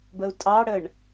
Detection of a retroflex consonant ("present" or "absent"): present